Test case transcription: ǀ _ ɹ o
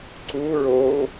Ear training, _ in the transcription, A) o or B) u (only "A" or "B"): B